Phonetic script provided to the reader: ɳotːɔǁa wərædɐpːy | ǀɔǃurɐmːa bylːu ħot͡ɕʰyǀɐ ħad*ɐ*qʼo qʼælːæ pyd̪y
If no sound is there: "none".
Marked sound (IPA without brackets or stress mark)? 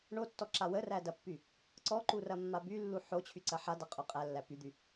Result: a